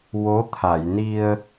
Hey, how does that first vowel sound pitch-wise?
rising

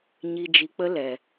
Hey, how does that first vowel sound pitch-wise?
low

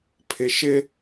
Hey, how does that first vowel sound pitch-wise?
low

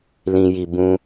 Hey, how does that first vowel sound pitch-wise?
high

